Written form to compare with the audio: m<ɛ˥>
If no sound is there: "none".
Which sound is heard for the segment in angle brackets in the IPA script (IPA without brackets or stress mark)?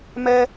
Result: ɛ˥